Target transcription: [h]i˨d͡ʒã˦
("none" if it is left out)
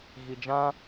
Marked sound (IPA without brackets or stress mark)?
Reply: ɣ